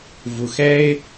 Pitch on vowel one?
low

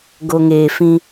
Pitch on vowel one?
low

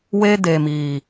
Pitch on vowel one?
high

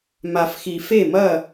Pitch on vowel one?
low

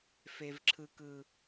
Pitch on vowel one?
high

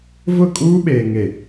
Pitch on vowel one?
falling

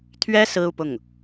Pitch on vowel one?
high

